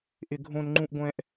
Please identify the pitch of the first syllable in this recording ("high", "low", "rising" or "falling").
high